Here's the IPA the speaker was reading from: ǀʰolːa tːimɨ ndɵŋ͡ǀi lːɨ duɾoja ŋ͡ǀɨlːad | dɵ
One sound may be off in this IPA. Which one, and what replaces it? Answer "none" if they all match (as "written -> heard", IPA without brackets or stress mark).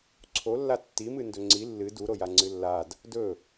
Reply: none